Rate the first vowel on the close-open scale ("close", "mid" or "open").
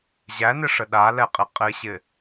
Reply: open